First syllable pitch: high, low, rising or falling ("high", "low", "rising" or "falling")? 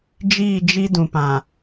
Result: falling